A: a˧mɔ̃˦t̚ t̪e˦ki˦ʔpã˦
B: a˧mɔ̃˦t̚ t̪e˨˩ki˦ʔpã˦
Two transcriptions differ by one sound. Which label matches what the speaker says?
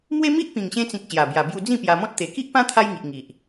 B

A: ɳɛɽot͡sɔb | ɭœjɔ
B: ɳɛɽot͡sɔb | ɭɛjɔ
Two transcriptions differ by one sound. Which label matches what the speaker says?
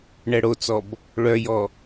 A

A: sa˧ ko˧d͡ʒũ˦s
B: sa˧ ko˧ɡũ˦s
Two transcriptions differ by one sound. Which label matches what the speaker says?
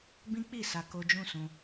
A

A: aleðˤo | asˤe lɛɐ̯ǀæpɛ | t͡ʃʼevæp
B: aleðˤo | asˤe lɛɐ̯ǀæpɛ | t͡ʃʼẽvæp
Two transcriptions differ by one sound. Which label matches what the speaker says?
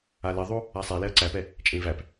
B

